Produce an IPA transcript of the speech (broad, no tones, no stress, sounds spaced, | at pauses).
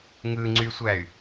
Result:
ŋ ɯ ŋ͡ǀ y sʷ æ y̯